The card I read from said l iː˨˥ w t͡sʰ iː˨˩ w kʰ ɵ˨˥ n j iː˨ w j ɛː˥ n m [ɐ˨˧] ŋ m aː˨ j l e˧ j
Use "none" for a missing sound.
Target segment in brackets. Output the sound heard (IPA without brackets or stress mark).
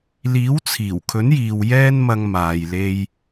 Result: ɐ˧